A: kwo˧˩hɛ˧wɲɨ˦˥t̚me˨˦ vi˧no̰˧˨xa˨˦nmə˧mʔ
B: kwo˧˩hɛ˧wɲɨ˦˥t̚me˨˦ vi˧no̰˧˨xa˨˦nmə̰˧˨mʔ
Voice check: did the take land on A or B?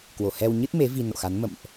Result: B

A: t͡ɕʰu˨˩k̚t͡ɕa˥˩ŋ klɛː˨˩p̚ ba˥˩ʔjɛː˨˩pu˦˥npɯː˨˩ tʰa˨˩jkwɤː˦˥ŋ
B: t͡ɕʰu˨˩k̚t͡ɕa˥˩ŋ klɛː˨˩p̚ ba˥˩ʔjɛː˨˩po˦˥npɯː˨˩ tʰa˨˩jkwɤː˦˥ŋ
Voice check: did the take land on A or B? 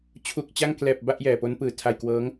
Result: B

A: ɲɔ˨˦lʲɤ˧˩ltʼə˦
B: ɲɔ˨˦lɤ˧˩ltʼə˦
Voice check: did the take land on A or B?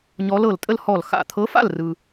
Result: B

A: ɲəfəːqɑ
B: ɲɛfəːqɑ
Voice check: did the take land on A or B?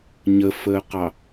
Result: A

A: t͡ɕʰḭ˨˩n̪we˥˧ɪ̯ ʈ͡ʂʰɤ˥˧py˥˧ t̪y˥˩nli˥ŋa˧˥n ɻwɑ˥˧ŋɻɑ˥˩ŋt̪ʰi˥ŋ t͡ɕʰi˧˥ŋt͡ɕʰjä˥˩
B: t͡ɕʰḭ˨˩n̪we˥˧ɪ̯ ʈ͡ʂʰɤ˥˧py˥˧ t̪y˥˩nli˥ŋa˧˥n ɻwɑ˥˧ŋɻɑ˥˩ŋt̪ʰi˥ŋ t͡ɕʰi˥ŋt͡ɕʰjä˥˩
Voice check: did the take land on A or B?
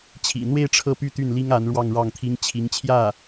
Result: A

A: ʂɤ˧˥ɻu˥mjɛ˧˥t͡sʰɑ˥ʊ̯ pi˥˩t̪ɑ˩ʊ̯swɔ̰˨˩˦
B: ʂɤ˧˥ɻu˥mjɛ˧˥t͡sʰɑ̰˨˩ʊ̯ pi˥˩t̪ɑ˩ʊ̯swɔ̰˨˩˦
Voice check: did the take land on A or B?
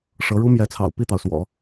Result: B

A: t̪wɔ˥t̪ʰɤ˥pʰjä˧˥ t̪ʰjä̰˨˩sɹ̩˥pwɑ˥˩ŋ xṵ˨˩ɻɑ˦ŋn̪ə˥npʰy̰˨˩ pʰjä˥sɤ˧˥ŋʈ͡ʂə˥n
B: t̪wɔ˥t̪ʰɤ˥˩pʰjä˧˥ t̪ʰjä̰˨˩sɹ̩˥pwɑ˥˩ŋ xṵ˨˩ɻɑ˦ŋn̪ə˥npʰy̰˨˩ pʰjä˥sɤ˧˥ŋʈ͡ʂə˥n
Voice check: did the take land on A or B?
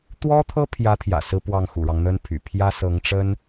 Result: A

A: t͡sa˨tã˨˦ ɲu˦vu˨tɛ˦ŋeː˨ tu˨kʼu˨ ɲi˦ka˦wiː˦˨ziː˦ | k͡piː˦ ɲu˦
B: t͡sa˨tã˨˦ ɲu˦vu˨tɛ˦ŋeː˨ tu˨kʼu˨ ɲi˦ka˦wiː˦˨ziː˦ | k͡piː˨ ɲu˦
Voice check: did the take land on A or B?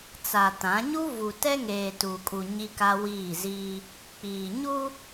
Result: B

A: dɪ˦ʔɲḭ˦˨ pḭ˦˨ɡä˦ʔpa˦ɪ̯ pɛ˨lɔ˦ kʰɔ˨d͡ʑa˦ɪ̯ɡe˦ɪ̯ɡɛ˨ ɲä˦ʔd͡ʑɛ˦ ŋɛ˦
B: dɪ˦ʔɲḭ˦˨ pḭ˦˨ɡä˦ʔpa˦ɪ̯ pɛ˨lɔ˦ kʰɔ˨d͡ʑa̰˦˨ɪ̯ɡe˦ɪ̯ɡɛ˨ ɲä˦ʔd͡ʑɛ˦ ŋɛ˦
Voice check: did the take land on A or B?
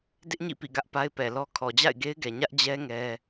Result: B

